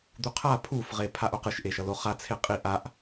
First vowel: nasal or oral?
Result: oral